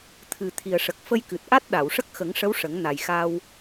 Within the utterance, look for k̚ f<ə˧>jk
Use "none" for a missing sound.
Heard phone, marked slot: ə˧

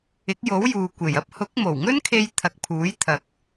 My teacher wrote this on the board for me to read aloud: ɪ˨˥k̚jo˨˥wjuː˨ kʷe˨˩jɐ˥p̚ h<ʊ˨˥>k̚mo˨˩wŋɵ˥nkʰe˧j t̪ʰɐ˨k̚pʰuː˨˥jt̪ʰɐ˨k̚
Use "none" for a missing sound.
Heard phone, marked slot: ʊ˨˥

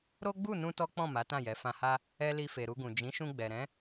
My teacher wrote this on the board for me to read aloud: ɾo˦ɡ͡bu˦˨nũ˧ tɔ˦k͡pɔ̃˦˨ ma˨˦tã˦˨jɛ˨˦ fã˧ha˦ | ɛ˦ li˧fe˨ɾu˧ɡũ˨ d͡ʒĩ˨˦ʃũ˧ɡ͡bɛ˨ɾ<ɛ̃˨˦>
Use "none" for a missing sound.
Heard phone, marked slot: ɛ̃˨˦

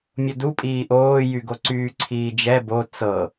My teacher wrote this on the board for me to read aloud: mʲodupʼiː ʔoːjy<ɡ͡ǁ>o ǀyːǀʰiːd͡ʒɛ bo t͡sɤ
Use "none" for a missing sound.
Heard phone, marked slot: ɡ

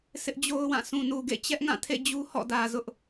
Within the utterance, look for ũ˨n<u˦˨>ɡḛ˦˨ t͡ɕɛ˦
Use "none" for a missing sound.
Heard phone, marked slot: u˨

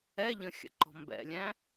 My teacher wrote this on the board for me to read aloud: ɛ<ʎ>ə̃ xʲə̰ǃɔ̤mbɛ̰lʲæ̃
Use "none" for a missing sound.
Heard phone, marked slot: ʎ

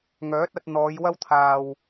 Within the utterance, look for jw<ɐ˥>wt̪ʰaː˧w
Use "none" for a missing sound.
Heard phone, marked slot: ɐ˥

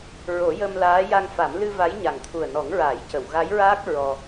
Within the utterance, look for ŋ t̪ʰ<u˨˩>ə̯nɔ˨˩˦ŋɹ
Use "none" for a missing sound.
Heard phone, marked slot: u˨˩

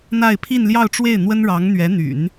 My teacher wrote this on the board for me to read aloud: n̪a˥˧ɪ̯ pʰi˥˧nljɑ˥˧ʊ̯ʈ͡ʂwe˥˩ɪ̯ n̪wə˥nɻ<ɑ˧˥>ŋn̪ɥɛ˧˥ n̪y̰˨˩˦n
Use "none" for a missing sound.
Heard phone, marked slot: ɑ˧˥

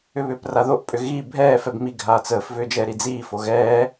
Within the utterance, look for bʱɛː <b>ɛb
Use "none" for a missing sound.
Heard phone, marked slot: f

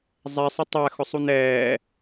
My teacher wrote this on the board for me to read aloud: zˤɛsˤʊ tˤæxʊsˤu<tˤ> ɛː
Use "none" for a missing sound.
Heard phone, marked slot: n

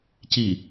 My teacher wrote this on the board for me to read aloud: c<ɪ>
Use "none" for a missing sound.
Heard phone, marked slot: i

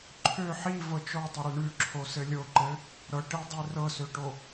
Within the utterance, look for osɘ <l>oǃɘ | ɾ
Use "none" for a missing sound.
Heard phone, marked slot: lʲ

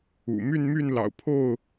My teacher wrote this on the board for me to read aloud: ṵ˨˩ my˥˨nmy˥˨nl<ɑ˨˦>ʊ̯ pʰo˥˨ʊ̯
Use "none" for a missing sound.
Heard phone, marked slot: ɑ̰˨˩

